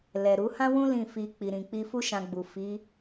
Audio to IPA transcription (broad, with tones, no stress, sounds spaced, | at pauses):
l ɛ˨ ɾ u˨˦ h ã˦ w ũ˦ l ĩ˦˨ f i˧ k͡p i˨ ɾ ĩ˨ k͡p i˧ f u˦ ʃ ã˧ ɡ͡b u˨ f i˨˦